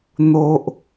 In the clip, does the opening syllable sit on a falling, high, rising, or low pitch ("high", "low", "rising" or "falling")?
high